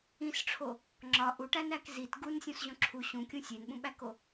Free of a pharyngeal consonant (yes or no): yes